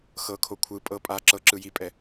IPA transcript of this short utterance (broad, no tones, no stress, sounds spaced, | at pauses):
x ɤ kʰ o kʷʰ ɯ pʼ ɤ pʼ a ǁ ɤ ǁ ɯ j i pʼ ɛ